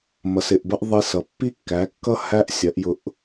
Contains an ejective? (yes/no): no